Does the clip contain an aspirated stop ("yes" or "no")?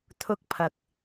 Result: yes